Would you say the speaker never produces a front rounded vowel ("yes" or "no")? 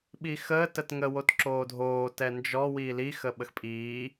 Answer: yes